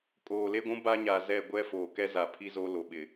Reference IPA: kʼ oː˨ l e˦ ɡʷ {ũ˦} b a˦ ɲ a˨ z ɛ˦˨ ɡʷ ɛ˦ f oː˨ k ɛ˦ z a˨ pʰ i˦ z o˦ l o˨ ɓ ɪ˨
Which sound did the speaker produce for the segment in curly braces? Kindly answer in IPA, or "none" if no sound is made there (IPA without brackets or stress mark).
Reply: ũ˦